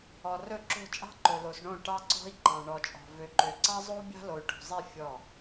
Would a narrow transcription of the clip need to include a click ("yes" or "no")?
yes